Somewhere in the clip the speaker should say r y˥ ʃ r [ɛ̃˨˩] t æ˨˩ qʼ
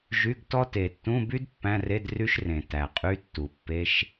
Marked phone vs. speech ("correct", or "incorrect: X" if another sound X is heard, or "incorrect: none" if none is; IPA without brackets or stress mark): incorrect: ẽ˨˩